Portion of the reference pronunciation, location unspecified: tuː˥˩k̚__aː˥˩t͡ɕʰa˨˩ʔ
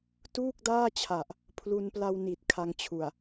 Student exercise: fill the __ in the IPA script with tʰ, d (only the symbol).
d